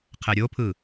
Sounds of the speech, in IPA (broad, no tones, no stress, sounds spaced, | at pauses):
qʰ ɛ ɾʲ o pʰ ɯ